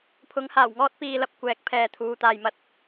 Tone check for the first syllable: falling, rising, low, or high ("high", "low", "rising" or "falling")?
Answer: rising